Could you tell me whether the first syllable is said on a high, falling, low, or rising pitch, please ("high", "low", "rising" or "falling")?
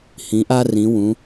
rising